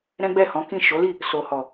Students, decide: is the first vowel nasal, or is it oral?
nasal